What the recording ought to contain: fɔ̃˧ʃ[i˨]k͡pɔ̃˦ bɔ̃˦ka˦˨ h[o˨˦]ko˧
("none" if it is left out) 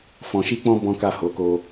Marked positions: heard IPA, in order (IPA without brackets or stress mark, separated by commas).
i˦, o˨˦